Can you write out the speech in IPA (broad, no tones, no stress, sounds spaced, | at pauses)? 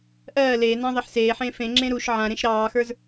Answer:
ʔ ɜː l eː n ã ðˤ e ħ s eː ħ ẽː f ẽ ŋ͡ǁ ẽ ɾ u ʃ ʕ ã ɾ ẽ ʃ ɾ ɑː x ə˞ z